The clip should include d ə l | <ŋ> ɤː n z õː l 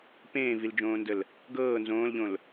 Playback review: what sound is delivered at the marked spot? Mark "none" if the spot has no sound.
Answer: ɡ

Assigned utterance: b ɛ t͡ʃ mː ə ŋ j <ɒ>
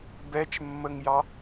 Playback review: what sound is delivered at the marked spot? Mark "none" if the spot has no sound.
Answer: ɑ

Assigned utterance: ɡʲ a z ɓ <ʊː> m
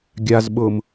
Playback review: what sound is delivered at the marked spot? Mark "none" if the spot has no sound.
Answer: ʊː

